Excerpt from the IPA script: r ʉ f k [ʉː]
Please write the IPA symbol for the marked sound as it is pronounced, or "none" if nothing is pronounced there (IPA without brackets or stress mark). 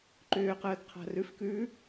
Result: ʉː